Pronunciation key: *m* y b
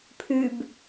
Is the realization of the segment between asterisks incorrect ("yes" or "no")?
yes